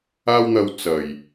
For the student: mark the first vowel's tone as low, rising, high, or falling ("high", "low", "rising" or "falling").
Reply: high